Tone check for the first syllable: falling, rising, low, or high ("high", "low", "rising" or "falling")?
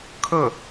falling